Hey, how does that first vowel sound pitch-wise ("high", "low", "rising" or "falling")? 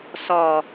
low